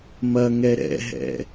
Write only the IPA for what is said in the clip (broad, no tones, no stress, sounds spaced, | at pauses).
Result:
m ɐ ŋ ɛ ɾ ɛ̰ ɦ ɛ̰